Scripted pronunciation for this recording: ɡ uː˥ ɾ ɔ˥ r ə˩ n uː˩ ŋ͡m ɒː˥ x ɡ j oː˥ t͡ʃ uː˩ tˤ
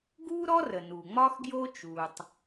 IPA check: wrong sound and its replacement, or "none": none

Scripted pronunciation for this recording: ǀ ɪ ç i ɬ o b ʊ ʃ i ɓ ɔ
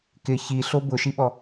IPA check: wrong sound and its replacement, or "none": ǀ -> k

